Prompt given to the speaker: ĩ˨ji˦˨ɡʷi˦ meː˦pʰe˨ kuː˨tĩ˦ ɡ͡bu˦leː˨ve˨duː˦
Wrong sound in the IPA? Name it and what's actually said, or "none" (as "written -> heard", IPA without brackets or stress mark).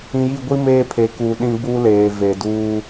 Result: t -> ɗ